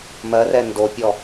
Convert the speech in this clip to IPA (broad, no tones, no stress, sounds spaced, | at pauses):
m ɜ r ɛ n d o pʲ ɔ